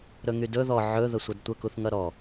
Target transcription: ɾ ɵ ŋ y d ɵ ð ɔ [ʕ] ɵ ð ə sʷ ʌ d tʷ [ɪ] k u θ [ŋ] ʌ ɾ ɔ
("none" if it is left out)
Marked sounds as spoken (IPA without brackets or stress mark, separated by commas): ʕ, ə, ŋ